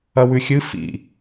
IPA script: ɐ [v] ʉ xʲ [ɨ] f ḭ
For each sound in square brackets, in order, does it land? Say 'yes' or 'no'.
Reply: no, yes

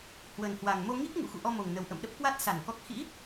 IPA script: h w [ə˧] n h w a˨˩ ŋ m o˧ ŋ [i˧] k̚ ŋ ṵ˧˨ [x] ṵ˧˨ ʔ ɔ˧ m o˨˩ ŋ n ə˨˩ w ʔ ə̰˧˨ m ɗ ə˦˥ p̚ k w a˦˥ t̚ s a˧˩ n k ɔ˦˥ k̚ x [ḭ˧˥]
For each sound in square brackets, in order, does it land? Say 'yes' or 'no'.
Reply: no, no, yes, yes

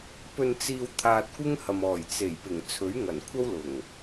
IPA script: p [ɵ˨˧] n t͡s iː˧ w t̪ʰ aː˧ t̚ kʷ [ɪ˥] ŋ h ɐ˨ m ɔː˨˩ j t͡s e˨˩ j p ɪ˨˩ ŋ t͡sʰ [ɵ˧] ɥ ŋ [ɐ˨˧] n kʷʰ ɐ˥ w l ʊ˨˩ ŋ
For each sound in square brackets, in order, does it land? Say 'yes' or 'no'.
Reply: no, yes, no, no

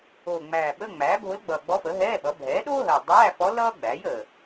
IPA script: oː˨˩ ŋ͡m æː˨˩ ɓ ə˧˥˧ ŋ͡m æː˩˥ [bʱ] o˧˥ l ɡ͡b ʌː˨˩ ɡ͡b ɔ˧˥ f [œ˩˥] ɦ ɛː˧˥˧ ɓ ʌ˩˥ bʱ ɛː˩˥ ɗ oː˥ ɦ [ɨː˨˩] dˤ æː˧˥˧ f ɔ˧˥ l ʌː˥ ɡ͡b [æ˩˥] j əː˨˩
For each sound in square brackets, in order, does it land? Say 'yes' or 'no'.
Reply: yes, no, no, yes

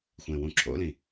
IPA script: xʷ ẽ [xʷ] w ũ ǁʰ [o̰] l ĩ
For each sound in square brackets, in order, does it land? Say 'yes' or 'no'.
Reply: no, yes

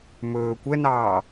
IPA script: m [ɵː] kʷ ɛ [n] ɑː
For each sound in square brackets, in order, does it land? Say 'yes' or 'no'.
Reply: yes, yes

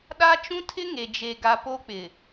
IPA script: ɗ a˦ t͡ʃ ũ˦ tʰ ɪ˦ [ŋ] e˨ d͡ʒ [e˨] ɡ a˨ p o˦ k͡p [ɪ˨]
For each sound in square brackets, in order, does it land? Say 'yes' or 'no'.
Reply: yes, yes, yes

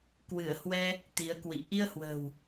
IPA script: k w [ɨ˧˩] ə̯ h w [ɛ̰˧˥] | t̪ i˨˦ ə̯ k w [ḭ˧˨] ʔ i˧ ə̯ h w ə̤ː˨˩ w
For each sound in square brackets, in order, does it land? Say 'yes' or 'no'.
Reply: yes, no, yes

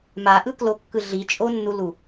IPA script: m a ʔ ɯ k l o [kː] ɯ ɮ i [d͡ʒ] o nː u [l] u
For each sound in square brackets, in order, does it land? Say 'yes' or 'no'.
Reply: yes, no, yes

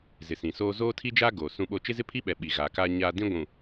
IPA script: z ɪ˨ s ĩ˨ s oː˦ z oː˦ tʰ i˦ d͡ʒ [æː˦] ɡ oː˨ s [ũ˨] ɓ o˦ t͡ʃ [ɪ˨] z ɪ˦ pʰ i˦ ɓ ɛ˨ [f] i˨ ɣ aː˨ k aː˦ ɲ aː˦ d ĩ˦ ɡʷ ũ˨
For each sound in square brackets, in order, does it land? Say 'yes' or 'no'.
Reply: no, no, no, no

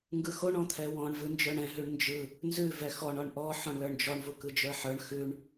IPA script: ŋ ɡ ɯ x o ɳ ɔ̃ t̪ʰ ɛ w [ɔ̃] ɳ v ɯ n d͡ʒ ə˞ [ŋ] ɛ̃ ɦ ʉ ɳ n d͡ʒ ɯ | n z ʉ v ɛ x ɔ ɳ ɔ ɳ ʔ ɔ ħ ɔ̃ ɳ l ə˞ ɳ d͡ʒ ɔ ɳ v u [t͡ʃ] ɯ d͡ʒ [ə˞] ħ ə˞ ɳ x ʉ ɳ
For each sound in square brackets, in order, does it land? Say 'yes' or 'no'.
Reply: yes, no, no, yes

